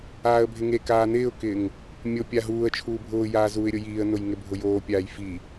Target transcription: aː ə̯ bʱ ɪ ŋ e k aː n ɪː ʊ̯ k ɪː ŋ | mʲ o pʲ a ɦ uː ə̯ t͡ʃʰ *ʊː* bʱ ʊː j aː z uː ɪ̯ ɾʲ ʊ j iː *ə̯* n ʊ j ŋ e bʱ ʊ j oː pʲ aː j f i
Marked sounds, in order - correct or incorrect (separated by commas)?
incorrect, correct